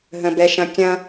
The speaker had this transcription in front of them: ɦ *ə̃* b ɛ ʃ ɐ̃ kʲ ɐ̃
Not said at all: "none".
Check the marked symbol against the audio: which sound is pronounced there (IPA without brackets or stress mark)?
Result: ə̃